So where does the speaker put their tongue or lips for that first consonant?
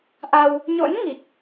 throat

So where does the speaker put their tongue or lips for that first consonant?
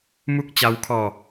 lips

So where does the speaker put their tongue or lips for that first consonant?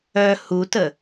throat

